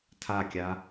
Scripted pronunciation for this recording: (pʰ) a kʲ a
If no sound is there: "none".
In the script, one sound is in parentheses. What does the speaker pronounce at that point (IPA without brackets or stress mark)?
tʰ